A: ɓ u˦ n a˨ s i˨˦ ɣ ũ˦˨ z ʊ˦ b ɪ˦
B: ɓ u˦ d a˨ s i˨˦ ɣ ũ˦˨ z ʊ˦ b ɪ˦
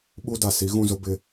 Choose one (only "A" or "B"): B